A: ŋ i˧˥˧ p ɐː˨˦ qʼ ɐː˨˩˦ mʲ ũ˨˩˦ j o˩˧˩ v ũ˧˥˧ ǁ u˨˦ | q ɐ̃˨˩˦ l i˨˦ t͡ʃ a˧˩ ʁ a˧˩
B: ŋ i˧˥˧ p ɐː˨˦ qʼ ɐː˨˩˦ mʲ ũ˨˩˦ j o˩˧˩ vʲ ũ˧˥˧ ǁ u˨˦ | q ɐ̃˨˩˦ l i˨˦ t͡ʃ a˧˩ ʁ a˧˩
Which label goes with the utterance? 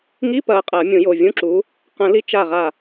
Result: B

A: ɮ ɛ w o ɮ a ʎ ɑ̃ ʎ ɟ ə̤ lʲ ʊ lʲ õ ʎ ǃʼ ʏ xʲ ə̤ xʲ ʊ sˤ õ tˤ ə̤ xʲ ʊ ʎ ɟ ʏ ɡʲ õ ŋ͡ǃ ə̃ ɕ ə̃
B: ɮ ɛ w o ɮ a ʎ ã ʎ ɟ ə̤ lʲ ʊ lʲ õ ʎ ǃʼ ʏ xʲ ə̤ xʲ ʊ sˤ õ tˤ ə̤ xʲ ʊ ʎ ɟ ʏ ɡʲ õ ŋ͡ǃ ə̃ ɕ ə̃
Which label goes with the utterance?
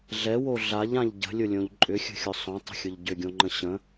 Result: B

